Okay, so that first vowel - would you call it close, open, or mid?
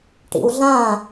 close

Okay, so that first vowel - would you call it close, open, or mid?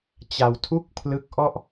open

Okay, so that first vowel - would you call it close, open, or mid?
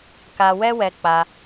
open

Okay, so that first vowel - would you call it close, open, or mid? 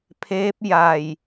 mid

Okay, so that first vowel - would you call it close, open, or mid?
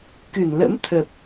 close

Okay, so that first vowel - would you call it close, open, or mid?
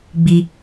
close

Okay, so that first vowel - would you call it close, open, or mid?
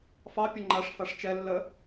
open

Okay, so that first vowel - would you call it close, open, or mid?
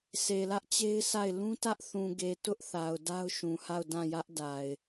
mid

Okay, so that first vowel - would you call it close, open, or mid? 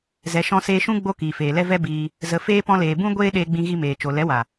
mid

